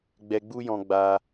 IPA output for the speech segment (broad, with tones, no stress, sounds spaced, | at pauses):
ɡ͡b ɛ˧ ɡ͡b u˦ j ɔ̃˧ ɡ͡b a˧